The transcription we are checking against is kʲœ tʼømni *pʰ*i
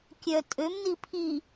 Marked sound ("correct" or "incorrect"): correct